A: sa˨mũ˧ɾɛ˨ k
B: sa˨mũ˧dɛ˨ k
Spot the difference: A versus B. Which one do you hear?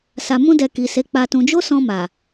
B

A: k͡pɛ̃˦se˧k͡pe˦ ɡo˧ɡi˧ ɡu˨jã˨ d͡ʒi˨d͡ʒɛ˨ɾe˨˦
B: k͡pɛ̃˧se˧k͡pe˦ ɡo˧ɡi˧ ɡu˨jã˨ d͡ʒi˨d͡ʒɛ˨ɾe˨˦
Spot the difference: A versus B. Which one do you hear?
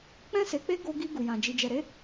A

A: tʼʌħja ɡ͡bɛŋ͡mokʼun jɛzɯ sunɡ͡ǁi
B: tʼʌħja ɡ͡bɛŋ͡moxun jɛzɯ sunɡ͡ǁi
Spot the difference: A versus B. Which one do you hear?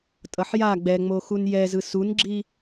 B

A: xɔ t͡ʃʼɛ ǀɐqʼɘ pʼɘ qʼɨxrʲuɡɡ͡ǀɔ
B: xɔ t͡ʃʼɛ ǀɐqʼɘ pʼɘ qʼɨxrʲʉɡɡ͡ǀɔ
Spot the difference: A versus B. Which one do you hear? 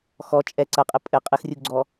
A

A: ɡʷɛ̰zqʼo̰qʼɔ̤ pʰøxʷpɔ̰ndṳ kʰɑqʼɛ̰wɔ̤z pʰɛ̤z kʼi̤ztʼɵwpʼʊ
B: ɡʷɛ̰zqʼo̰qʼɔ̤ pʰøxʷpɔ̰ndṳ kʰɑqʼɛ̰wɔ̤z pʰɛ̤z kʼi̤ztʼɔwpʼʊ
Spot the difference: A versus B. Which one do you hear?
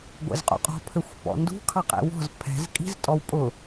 B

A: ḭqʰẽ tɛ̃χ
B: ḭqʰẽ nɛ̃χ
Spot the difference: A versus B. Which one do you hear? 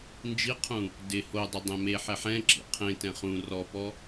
A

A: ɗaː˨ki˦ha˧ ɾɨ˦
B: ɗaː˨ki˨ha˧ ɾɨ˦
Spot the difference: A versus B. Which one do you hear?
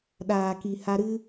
B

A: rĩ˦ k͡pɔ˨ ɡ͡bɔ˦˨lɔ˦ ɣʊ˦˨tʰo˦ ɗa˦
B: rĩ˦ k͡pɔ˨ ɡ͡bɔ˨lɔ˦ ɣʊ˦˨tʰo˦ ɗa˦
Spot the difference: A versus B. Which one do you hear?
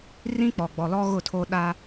B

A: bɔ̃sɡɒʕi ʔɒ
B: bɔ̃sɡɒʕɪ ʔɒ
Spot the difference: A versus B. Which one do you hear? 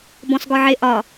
B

